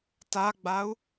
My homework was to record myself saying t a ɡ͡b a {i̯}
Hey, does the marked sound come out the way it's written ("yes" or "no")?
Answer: no